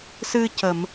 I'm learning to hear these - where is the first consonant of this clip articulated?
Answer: tongue tip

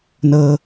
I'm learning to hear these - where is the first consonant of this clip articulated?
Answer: tongue tip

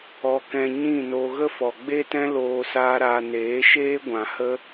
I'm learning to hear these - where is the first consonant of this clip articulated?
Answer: velum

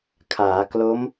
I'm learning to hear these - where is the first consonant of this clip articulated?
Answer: velum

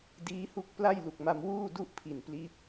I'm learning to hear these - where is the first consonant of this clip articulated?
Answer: tongue tip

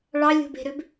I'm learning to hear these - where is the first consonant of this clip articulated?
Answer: retroflex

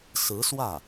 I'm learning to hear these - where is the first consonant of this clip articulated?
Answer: tongue tip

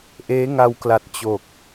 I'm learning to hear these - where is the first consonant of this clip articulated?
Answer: throat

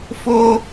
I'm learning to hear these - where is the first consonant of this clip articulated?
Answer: lips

